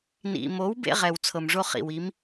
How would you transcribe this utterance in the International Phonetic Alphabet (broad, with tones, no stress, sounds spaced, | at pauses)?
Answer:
n ḭ˨ m o˨˥ w b ḛ˦ ʁ ɛ˨ w t͡sʰ ɤ˨ m ʐ o˦ χ ḭ˨ w i˨˥ m